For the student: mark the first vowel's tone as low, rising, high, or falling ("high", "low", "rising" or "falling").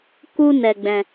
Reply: high